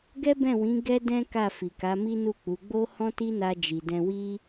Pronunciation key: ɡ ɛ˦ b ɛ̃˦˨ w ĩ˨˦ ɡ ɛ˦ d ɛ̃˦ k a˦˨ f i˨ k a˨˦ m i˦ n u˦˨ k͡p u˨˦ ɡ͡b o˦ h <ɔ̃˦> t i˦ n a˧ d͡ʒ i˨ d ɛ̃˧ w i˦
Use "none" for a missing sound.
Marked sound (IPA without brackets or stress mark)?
ɔ̃˦